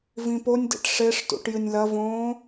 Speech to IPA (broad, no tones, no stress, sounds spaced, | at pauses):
v ĩ p o nʲ d ḛ ʈ ʂ e ʂ t ṵ ʈ j ɨ nʲ l ɐ v õː